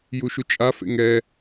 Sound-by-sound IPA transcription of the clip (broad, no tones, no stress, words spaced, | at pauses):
juʃut͡ʃʼa fḛŋɛ